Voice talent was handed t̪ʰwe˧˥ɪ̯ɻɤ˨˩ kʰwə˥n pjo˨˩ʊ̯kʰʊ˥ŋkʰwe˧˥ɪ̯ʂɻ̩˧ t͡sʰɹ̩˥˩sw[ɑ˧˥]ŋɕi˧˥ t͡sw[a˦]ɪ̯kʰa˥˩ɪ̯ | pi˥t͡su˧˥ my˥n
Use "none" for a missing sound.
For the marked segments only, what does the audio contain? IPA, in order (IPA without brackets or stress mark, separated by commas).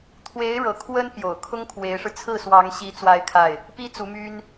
ɑ˧˥, a˥˧